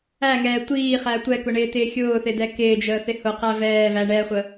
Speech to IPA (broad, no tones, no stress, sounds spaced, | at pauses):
æ ŋ ɛː tʷ iː χ æ tʷ ɛ k ʊ ɳ ɪː t ɪː xʲ ʊː θ ɪ d ɛ k ɪː d͡ʒ əː θ ɪ h ʊ q æ v ɛː v æ ɳ ɛ χʷ ə